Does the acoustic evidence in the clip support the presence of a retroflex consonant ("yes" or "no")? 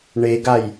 yes